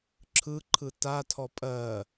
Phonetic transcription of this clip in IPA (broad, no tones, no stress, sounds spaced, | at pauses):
ǁʰ ɯ ǃʰ ɯ t a tʰ ɔ pʼ ɜ